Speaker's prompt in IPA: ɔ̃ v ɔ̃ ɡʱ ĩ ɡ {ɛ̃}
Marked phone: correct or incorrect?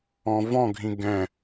correct